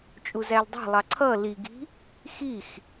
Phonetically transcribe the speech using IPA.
t͡ʃʼ u z æ l dˤ æ̤ lˠ ɑ ǀʰ ʌ l i ɡ i̤ | x i x

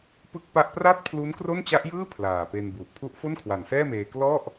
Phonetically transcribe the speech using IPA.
p ɯ˥˩ k̚ p a˥˩ ʔ p r a˥˩ t̚ pʰ l u˦˥ n k r o˥˩ n t͡ɕ a˦˥ ʔ j ɯː˥˩ pʰ l aː˨˩ p e˧ n b u˨˩ ʔ pʰ u˦˥ ʔ f o˥˩ n kʰ w a˨˩ n s ɛː˥˩ m eː˧ k l ɔ˥˩ ʔ

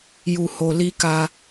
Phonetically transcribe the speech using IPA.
j u˧ h o˧ l i˦ k a˦

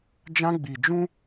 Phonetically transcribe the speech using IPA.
d͡ʒ ã˦ ɡ͡b i˨ d͡ʒ ũ˦

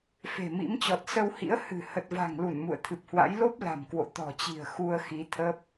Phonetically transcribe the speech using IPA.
f e̤˨˩ m ḭ˧˥ m t͡ɕ ɔ˨˩ t̚ s ə˧ w h ḭ˧˥ ə̯ h ɨ̤˨˩ h ə˨˩ t̚ v a̤˨˩ ŋ l u˧˩ n m ṵ˧˨ ə̯ t̪ʰ ɨ˨˩ p̚ h w a̰˧˥ j l o˦˥ p̚ l a̤˨˩ m k w o̰˧˨ t̪ ɔ̤˨˩ t͡ɕ i̤˨˩ ə̯ x u˧ ə̯ x i˨˦ t̪ʰ ə˦˥ p̚

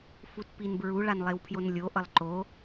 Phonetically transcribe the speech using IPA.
f u t p i n b ɹ u ɭ a n lˠ e w pʰ j o n lʲ o ʔ ʌ lˠ ǃ o

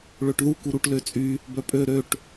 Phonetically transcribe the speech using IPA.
ɭ ø ʈ ð u k u ɾ u ʈ l ø t͡sʼ y | b œ pʼ ø ɾ ø ʈ

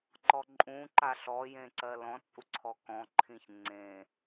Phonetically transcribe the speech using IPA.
ǃ ɔ ǃʼ ũ ǃ a ɬ ɔ j ẽ ǀ ɜ l ɔ̃ t͡sʼ u ǀʰ ɔ k ɔ̃ ǃʰ ĩ ç ŋ͡ǀ ẽ

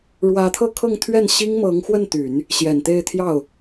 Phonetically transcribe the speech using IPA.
ɻ w ä˧˥ t̪ʰ ɤ˥˧ kʰ ɤ˥˧ ŋ t̪ʰ ɥ ɛ˥˩ n ɕ i˥ ŋ m ɤ˧˥ ŋ x w ə˥˩ n t̪ y˨˩˦ n | ɕ j ɛ˨˩ n t̪ e˥˧ ɪ̯ t̪ʰ j ɑ˥˩ ʊ̯

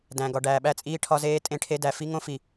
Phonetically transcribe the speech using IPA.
d æ̃˨ ɡ ɒ˨ ɖ æː˨ ɓ æ˦ t͡sʼ iː˦ ʈʰ ɒ˦ z eː˦ tʼ ẽ˦ ʈʰ e˦ d æ˨ f i˦ ŋ õ˦ f i˨

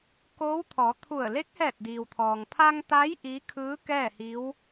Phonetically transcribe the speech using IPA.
k oː˧˥ w t̪ʰ ɔː˩˧ t̪ʰ u˧˩ ə̯ l e˧˥ k̚ h ɛː˧˩ t̚ d iː˩ w t̪ʰ ɔː˩ ŋ pʰ aː˧ ŋ t̪ aː˧˥ j ʔ iː˧˥ kʰ ɯː˧˥ k ɛː˥˨ h i˧˥ w

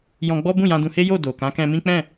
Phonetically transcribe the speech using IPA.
j ɔ̃˧ ɡ͡b ɔ˦ b ũ˦˨ j ã˧ d ũ˧ h e˦ j o˦˨ d o˨ k ã˨˦ k ɛ̃˧ m ĩ˦ k͡p ɛ̃˦˨

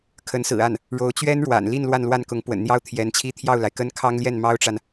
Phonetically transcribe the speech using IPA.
kʰ ə˧˥ n s ɹ̩˨˩ a˥˩ n | ɻ o˧˥ ʊ̯ t͡ɕ ɥ ɛ˥ n ɻ w a̰˨˩ n l i˥˧ n l w a˥˧ n l w a˥˩ n k ʊ˧˥ ŋ p w ə̰˨˩ n n̪ j ɑ˥ ʊ̯ t̪ʰ j ɛ˧˥ n t͡ɕʰ i˥ t̪ʰ j ɑ˥˩ ʊ̯ l a˩ ɪ̯ k ə˥ n kʰ ɑ˥ ŋ l j ɛ˥˩ n m ɑ˥ ʊ̯ ʈ͡ʂ a˨ n

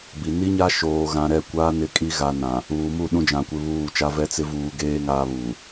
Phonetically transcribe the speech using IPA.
b i˨ n i˦ ɲ a˦ ʃ oː˨ ɣ ã˨ ɾ ɛ˦˨ kʷ aː˦ n ɪ˦˨ kʼ i˦ ɣ a˨ n ã˨ | uː˨ m u˦˨ ɗ ũ˦ d͡ʒ ã˨ kʷ ɪ˦ β uː˦˨ t͡ʃ a˦ v ɛ˦ t͡s ɪ˦ v uː˨ ɡ eː˦ ŋ aː˦ β uː˨

